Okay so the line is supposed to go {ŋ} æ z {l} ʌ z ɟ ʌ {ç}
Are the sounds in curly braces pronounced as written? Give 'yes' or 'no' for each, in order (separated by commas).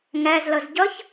yes, yes, yes